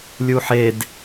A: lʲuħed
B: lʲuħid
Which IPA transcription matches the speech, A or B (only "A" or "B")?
A